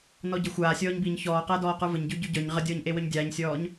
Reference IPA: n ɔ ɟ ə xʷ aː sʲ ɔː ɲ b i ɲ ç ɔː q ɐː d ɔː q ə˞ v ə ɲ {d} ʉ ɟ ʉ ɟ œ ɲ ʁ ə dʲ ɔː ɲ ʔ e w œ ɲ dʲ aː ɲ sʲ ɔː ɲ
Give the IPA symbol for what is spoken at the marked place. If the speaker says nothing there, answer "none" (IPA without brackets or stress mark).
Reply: ɟ